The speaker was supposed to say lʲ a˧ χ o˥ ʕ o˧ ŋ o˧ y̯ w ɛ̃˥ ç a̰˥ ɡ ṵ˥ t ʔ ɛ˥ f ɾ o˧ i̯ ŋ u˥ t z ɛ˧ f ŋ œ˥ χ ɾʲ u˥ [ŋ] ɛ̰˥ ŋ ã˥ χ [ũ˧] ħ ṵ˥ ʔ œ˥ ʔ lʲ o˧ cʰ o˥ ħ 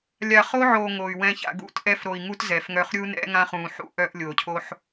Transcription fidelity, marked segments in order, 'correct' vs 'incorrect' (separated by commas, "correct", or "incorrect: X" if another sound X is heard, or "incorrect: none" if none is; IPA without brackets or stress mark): incorrect: n, correct